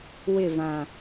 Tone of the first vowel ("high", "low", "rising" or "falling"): falling